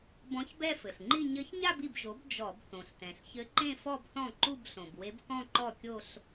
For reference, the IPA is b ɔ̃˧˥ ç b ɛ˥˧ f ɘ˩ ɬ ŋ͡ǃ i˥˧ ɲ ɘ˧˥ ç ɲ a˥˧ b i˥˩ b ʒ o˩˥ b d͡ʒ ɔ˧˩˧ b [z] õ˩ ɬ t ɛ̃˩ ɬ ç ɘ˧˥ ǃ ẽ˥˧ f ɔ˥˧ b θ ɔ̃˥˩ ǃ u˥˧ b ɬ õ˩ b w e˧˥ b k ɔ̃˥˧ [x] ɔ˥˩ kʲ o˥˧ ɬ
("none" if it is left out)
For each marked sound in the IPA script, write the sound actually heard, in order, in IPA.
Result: θ, ǃ

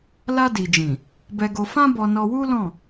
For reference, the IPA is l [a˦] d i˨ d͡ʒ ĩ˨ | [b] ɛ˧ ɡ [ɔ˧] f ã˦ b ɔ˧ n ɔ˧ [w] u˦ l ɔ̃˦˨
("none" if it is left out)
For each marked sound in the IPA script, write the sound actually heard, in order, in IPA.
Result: a˧, b, o˧, w

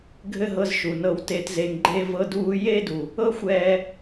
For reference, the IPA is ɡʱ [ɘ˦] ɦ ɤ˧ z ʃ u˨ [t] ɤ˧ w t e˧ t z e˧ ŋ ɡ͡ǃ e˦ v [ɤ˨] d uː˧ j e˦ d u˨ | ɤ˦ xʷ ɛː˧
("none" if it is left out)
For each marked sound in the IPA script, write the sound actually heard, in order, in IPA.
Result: ɘ˦, n, ɤ˧

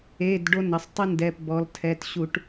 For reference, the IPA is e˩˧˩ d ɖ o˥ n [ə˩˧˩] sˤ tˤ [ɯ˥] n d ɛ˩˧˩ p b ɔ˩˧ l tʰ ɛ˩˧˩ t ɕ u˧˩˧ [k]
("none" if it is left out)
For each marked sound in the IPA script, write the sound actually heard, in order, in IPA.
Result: ə˩˧˩, ɯ˥, ʈ

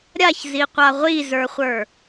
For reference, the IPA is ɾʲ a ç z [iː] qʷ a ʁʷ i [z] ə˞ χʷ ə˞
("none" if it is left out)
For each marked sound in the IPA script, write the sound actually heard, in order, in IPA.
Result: i, z

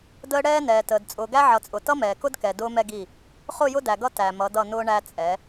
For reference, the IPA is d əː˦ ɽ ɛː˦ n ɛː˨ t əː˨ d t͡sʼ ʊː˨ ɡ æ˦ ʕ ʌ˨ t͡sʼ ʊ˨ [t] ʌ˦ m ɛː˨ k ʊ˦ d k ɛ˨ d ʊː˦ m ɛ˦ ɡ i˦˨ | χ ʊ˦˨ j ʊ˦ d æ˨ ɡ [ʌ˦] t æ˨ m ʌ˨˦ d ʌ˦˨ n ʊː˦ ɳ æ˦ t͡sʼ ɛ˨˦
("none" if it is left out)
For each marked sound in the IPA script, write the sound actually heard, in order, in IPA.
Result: t, ʌ˦

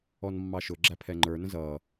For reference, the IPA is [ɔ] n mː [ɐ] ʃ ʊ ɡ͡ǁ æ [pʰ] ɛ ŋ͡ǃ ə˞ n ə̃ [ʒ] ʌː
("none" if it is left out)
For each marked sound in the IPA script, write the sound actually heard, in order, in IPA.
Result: ɔ, ɑ, pʰ, z

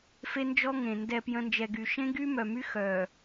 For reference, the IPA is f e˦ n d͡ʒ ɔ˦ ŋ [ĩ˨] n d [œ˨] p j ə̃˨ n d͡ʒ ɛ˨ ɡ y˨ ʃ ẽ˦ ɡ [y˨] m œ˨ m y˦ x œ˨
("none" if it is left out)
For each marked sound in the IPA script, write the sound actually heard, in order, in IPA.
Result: ẽ˨, ɛ˨, y˦

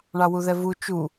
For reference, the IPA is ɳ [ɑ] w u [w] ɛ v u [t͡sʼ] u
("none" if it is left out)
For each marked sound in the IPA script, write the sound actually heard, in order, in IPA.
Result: ɑ, ð, t͡ʃ

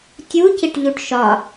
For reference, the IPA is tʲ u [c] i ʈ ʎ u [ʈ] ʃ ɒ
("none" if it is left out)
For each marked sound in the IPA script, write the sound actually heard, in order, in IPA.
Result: c, ʈ

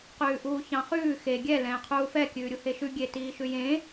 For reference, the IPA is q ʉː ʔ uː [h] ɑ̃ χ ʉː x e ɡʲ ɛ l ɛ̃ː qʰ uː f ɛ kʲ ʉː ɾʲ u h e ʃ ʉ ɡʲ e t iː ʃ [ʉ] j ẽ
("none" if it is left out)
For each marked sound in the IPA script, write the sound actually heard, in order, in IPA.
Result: ç, ʉ

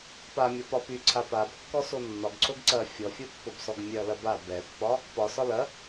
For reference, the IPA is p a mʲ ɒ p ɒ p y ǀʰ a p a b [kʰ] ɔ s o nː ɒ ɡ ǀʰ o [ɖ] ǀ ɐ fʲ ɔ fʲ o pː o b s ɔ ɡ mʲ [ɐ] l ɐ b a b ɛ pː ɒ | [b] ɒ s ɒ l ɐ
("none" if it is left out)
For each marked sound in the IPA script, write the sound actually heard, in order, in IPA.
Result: kː, ɡ, ɐ, p

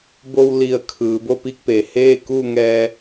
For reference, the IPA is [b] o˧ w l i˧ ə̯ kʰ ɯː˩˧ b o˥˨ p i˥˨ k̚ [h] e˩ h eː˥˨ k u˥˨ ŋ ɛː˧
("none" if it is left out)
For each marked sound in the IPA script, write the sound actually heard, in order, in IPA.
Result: b, p

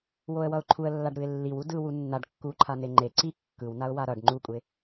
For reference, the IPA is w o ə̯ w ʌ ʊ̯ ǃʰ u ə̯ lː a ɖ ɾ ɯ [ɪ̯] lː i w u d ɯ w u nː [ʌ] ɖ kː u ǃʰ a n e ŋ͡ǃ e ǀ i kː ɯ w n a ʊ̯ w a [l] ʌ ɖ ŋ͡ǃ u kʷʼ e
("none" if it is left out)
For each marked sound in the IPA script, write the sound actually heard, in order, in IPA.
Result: ɪ̯, a, ɾ

